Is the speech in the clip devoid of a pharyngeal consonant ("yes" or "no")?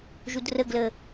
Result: yes